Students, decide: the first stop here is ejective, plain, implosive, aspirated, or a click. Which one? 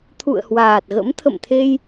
aspirated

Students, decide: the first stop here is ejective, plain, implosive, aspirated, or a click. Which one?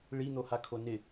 aspirated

